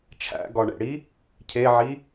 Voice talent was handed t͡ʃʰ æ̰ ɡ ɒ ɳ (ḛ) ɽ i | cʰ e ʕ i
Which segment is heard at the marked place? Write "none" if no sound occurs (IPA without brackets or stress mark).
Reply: ḛ